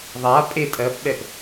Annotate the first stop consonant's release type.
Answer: ejective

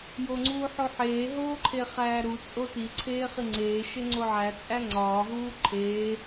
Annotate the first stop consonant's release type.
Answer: click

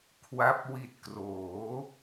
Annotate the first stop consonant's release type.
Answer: aspirated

